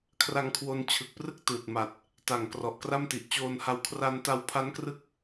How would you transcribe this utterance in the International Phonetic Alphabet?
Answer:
kʰra˧ŋkʰwo˧nt͡ɕʰɯ˨˩k̚prɯ˦˥k̚ tɯː˨˩t̚ma˨˩t̚ | ta˨˩ŋ krɔ˨˩ʔkra˥˩m ti˨˩ʔt͡ɕoː˧nha˧w kʰra˧nta˧w pʰa˦˥nkrɯ˦˥k̚

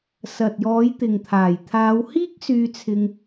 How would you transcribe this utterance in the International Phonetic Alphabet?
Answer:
sɐ˨t̚jɔː˨˧j t̪ɪ˨ŋt̪ʰaː˨˩j t̪ʰaː˨˧whiː˥k̚ syː˧t͡sʰɪ˧ŋ

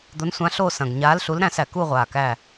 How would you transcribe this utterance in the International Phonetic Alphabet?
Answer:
d̪o˨˥nsʷã˨˥ɬo˦˨ sɐ̃˨˩ɡɲa˨˥lɬu˨˥lɾæ̃˦˨s æ˨˩ ku˦˨ʁʷa˨˩ kæ˦˨

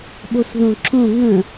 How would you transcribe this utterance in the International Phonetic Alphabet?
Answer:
ɓosðõǁõ ŋə̃

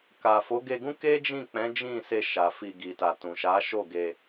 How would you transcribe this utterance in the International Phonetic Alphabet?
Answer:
ka˨fo˨˦ɡe˧ɡũ˦ ke˦d͡ʒĩ˦˨k͡pɛ̃˨˦ d͡ʒĩ˦˨se˧ʃa˨ fi˧ ɡi˨ta˨ tũ˨ʃa˨˦ʃo˦˨ɡe˧

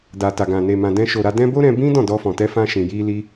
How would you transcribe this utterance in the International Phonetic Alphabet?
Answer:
da˨ta˨ ɡã˨ne˨ mã˨dɛ̃˧ʃo˨ɾa˧ dɛ̃˧ bo˦ɾɛ̃˧ bĩ˦ dɔ̃˦˨dɔ˧fɔ̃˨tɛ˧ fã˧ ʃĩ˨ ji˧li˧

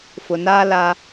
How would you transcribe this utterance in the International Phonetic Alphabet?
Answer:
fʊ˨naː˦ la˦

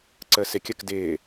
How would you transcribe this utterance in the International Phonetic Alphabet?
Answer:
ǀəːsɪkʲək dɪː

